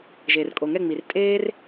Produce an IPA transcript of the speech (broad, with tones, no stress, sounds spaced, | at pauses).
ʒ eː˨ r kʼ o˨ ŋ ɛ˦˨ ŋ͡m i˨ r tʼ eː˦ r